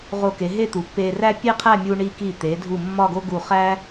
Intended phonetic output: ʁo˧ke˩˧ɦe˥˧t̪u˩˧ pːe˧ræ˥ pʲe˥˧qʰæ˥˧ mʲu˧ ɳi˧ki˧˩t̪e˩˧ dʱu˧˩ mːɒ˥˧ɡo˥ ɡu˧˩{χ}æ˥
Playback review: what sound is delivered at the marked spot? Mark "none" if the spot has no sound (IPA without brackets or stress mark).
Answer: χ